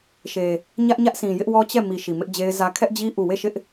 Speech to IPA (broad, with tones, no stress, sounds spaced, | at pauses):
ʃ e˨ | ɲ ä˦ ʔ ɲ ä˦ ʔ sʰ ĩ˨ j ɪ˦ ʔ w ɔ˦ t͡ɕ ɛ˦˨ m i˨ ʃ i˨ m ɪ˦ ʔ d͡ʑ e˦ ɪ̯ z ä˦ kʰ ɛ˦ ʔ d͡ʑ i˦ ʔ u˦˨ w e˦˨ ʃ ɪ˦ ʔ